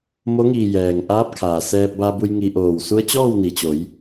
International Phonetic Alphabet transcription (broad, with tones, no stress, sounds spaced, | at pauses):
m o˧˥ ŋ iː˧˩ j ɛː˩ ŋ ʔ aː˧˥ p̚ kʰ aː˩ s ɛː˧ p̚ b a˧ b u˧ j ŋ i˧ ʔ oː˧˩ w s u˧˥ ə̯ t͡ɕ ɔː˥˨ w n i˩ t͡ɕ o˩˧ j